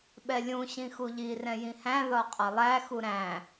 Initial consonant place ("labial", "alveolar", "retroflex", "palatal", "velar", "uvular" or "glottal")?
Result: labial